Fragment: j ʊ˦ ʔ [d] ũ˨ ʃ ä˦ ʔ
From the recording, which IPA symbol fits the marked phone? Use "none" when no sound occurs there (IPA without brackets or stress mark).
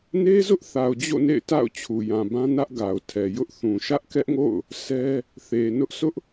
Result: θ